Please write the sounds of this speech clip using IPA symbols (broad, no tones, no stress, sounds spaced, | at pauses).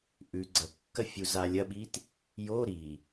ʔ ʉ ɡ͡ǀ ɐ kː ɐ fʲ u z a lʲ ɐ ɓ i t | j o ɾ i